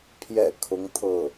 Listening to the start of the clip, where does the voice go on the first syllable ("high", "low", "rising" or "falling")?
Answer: low